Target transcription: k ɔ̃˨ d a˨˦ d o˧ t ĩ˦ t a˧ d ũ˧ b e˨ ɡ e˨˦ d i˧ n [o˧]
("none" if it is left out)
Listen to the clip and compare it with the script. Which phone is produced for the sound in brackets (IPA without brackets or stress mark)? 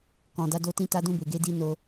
o˧